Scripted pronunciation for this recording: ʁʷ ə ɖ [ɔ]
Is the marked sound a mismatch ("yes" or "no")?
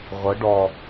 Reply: no